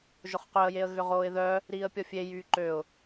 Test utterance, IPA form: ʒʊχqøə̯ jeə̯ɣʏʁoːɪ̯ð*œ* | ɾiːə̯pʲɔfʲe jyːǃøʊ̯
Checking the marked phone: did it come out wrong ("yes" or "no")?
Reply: no